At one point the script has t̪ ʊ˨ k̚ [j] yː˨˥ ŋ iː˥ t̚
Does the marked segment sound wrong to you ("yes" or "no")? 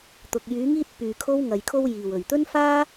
no